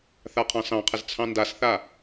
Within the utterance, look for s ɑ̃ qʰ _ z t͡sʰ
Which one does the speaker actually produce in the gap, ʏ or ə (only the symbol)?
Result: ə